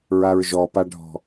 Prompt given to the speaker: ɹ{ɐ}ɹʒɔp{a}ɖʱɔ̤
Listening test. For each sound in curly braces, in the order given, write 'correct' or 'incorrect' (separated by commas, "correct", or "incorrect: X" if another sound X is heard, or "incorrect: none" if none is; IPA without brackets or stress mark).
incorrect: a, correct